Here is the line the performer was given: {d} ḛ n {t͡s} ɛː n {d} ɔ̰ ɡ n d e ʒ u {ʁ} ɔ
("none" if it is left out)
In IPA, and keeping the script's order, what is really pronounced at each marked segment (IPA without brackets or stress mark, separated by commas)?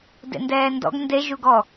d, d, d, ɡ